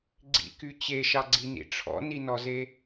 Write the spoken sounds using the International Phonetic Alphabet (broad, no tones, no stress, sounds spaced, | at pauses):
ɡ͡ǀ ḭ k y t͡ɕ e ʃ ɑ ɡ͡ǀ i n ḭ ʈ͡ʂʰ ɔ̰ n i n ɔ z e